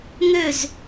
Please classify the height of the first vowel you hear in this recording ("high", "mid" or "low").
mid